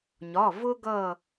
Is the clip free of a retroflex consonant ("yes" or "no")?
yes